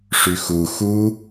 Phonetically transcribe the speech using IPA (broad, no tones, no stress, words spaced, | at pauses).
ʂyxu xu